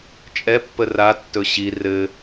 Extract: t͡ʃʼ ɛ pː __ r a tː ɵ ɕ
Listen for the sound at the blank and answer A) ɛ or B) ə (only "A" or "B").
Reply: B